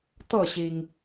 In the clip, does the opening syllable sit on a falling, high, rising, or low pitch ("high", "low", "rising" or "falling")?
falling